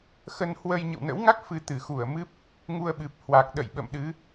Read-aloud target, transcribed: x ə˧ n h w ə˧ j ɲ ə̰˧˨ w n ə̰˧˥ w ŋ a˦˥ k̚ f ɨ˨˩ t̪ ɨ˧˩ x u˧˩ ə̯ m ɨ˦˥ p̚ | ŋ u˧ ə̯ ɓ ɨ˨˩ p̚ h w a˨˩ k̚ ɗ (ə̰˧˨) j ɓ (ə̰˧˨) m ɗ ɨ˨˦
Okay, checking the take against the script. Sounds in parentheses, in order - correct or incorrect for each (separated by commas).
correct, correct